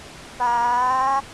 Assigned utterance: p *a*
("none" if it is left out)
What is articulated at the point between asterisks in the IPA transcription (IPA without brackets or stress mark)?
aː